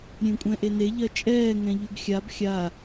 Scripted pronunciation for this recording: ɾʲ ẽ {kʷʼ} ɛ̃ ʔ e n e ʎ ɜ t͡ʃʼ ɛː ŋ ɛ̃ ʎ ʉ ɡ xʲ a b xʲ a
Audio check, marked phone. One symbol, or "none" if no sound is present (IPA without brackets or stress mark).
kʷʼ